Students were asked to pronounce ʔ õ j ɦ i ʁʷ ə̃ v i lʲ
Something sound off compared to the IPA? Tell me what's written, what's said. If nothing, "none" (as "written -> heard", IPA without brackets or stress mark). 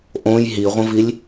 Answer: none